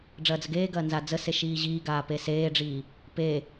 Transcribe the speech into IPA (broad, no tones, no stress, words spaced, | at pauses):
ɖ͡ʐɐːd͡zəɡeːɡɐː nzad͡zəse ʃiːʑiːɡaː peseːɖ͡ʐiː | pe